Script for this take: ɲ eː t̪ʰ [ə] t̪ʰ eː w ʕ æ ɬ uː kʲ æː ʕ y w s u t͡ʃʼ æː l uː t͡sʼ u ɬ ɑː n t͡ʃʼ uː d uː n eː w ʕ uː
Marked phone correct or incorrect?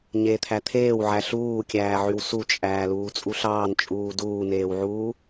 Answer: incorrect